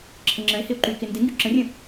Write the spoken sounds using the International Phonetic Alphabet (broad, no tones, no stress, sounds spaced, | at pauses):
ǁʰ ə ŋ͡ǁ ə̃ e̯ h ɪ o̯ ǃ y k ɪ n d ɪ ŋ ɡ y ǁ ə̃ rʲ ə̃